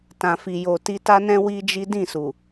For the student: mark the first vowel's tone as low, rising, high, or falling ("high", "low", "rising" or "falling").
low